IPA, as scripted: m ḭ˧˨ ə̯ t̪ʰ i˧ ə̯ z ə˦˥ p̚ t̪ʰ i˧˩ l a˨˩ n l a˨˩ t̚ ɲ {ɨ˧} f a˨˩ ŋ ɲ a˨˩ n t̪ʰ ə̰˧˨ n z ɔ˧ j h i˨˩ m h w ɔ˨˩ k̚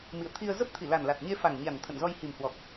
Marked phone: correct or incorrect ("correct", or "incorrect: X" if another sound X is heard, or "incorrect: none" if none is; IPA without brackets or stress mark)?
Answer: incorrect: e˧